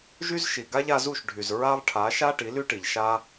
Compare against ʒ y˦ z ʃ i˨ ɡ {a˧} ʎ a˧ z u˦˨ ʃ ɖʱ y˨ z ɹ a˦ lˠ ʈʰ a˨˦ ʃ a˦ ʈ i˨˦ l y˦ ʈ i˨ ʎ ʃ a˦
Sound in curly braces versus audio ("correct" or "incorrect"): incorrect